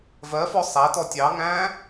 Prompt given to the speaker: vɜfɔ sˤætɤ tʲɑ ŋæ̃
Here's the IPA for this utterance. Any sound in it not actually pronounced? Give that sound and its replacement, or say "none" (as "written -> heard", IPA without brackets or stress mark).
ɤ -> ɔ